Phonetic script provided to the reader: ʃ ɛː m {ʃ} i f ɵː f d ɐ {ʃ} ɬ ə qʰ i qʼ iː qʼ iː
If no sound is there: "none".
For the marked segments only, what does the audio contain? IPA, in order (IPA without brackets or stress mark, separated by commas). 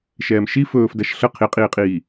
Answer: ʃ, ʃ